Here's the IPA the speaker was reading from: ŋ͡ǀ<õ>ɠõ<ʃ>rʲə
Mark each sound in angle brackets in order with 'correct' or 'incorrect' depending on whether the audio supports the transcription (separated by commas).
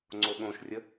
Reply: incorrect, correct